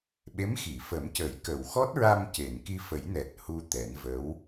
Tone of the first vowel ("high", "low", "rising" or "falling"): rising